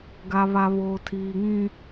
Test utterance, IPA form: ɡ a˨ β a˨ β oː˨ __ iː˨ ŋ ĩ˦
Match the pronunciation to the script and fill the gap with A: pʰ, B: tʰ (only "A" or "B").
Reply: B